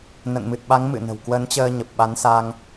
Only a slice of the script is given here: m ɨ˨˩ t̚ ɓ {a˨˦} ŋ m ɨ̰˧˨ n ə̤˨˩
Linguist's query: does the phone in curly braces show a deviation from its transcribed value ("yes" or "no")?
no